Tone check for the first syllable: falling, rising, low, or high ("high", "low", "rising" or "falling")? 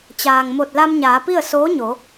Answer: low